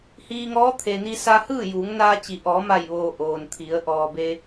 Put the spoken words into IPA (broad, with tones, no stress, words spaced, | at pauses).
hiː˧ŋɔː˧˥t̪ʰe˩ni˧ sa˧hɯː˥˨juː˩˧ŋnaː˧ t͡ɕi˩ʔɔː˩˧ma˧˩jʋoː˩ ʔoː˩nt̪ʰi˩˧ə̯ ʔɔː˩be˧